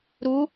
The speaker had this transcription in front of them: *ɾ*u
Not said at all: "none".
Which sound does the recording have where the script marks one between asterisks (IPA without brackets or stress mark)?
ɾ